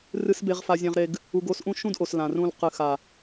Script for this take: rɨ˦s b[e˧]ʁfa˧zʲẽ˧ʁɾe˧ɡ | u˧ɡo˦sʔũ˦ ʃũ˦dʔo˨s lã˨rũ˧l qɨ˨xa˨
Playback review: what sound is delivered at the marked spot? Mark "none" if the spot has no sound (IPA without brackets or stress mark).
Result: e˧